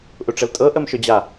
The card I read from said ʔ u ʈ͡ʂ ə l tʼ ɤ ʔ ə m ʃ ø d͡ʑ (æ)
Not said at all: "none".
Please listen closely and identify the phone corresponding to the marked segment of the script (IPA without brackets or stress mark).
a